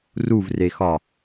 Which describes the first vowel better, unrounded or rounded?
rounded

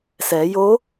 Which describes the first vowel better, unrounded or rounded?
unrounded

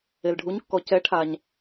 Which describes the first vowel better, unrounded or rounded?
unrounded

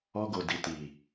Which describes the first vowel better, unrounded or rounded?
rounded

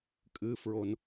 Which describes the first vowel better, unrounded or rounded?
unrounded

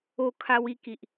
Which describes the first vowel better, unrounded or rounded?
rounded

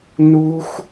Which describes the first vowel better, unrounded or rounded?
rounded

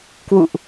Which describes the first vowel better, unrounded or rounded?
rounded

